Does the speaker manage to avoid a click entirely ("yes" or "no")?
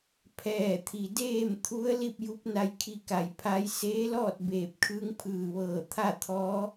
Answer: yes